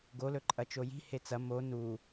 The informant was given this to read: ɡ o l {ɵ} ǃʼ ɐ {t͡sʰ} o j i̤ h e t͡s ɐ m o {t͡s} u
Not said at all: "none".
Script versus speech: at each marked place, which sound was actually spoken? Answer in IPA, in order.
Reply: ɵ, t͡ʃ, n

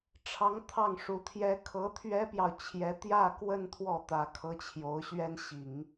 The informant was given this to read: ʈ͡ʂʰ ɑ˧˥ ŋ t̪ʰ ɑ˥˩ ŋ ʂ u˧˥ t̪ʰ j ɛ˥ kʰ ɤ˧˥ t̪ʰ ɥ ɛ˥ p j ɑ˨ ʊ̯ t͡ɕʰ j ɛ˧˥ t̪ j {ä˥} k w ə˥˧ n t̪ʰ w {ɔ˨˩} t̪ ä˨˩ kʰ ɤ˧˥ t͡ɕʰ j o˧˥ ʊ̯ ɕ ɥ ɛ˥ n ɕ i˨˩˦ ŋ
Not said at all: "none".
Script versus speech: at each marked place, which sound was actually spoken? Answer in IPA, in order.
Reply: ä˥˧, ɔ˥˩

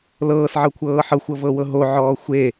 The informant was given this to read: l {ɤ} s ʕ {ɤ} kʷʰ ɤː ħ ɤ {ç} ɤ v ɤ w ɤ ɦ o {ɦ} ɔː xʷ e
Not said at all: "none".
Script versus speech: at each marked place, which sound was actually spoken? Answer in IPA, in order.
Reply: ɤː, ɤ, xʷ, ʕ

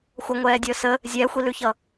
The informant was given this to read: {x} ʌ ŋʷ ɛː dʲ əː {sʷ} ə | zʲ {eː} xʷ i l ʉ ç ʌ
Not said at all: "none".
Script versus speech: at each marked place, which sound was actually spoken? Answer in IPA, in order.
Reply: xʷ, s, ɛː

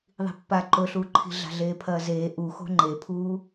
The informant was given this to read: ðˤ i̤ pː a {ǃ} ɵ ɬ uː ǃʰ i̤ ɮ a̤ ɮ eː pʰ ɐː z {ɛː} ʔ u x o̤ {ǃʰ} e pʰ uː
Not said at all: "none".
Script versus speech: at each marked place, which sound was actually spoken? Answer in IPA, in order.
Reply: ǃ, eː, ŋ͡ǃ

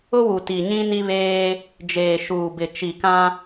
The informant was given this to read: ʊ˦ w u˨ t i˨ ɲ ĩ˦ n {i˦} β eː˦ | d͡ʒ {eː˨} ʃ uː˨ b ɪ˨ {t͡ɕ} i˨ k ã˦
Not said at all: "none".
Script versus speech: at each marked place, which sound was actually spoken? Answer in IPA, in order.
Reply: i˦, eː˨, t͡ʃ

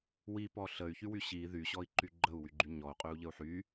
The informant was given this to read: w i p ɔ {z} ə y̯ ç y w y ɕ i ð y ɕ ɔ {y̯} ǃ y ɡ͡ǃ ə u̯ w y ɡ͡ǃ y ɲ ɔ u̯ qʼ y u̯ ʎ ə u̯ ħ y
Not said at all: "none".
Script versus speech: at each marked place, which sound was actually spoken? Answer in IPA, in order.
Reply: ɬ, i̯

